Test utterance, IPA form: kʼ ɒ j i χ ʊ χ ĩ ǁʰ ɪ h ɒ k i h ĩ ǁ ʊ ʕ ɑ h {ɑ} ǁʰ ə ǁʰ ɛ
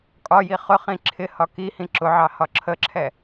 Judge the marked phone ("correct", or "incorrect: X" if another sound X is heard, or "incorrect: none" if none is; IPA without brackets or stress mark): incorrect: ɒ